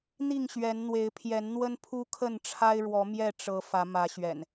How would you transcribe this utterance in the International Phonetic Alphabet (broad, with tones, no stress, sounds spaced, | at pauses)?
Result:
n̪ i˥˨ ŋ ɕ ɥ ɛ˨˦ n n̪ w e˨˦ ɪ̯ pʰ j ɛ˨˦ n n̪ w ə˦ n pʰ u˦ kʰ ə˥˨ n ʈ͡ʂʰ a˦ ɪ̯ ɻ w ɔ˨˦ m j ɛ˥˨ ʈ͡ʂ ɤ˨˦ f ä˨˦ m ä˨˦ ɕ ɥ ɛ̰˨˩ n